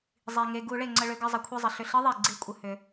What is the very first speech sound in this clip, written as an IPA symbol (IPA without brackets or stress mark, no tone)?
zˤ